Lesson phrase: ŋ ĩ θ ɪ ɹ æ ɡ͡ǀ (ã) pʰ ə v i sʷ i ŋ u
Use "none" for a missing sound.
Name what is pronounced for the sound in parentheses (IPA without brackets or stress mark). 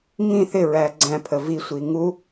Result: æ̃